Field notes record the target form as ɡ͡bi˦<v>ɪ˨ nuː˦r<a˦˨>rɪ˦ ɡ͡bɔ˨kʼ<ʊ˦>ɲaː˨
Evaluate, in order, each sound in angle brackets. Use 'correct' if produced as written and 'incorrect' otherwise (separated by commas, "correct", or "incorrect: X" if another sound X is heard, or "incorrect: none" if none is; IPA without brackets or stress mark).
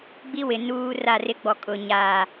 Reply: incorrect: w, correct, incorrect: ʊ˨